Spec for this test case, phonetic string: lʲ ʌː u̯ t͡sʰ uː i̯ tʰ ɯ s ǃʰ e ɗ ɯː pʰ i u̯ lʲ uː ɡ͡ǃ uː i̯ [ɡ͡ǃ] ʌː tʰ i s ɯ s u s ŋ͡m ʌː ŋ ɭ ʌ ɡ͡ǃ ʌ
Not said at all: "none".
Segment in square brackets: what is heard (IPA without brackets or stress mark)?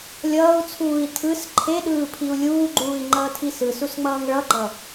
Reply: ŋ͡ǃ